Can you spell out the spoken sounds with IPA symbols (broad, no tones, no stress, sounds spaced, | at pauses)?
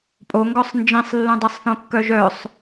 pʼ o ŋ ɡ ɔ sˤ n d͡ʒ ĩ sˤ lː ũ dˤ ɛ sˤ θ õ kː œ ʒ œ sˤ